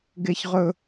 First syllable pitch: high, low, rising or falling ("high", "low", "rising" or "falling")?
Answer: high